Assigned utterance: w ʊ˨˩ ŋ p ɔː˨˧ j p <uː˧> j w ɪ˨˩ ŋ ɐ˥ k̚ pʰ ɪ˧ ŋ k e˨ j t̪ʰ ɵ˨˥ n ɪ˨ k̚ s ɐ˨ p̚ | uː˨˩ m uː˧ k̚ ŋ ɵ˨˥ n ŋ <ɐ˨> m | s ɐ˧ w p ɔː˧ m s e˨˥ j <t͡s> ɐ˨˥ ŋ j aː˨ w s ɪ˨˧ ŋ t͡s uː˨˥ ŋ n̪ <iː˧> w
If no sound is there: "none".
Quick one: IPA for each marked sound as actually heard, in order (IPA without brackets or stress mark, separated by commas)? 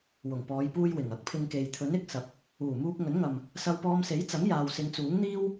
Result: uː˧, ɐ˨, t͡s, iː˥